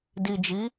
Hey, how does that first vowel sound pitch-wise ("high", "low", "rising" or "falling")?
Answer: low